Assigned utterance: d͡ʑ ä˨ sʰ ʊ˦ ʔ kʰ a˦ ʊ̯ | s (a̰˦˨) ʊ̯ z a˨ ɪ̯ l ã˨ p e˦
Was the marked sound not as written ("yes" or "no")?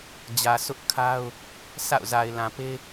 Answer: no